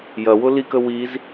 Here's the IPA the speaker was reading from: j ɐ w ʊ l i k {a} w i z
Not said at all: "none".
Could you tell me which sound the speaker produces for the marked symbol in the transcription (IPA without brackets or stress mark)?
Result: ə